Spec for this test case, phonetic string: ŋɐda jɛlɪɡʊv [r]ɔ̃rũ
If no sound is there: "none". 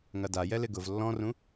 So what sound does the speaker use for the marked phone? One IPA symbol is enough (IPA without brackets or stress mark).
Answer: lː